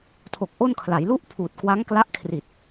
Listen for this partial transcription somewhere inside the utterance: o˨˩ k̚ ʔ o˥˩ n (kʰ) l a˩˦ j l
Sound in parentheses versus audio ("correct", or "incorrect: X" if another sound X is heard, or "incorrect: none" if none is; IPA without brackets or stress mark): correct